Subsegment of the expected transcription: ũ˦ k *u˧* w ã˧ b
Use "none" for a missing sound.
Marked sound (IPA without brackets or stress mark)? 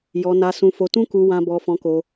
u˧